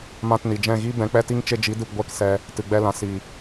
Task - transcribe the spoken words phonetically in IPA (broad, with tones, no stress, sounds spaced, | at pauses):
m ã˧ t n i˨ d͡ʒ ɛ̃˦˨ ɣ i˦ b ɛ̃˨˦ k͡p ɛ˦ t i˦ ŋ t͡ʃ e˧ d͡ʒ i˨˦ d ɨ˨ p ɡʷ ɛ˦˨ k s ɛ˧ | t ɨ˨ ɡ͡b ɛ˧ l ã˨ s i˨